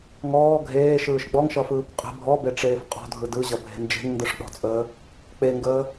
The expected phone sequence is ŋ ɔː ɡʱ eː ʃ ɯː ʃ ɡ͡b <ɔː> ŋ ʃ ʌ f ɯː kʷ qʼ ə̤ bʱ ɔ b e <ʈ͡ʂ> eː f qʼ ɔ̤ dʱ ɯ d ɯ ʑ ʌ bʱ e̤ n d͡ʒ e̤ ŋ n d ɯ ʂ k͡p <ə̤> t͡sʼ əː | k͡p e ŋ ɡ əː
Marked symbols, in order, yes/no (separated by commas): no, yes, no